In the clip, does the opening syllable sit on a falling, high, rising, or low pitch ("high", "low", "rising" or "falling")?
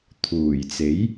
low